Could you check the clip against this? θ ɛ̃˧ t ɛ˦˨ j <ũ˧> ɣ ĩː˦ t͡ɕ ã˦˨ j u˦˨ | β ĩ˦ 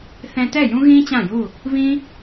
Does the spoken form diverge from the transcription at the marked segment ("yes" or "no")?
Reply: yes